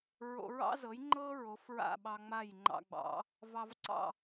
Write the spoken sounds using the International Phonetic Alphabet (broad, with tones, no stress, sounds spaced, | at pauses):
ɹ o̰˧ ɹ ɑ̰˥ z ɤ˩˥ j ŋ͡ǃ ɤ˥ ɹ o˩˥ f ɹ a̰˥˩ ɓ ɑ˧ ŋ͡m a˥˩ j ŋ͡ǃ ɑ̰˧ ɡ͡b ɑ̰˩˥ | v ɑ˧ v ǀ ɑ̰˥˩